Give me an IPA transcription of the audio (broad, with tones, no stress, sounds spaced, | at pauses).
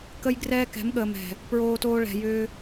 k ə˧ j ɡ r ɛː˦ k ɛ̤˨˦ m ɠ əː˨ m ɛ̤˨ | p ɹ oː˧ t oː˧ ɭ ɛ̤˨ j ʏː˧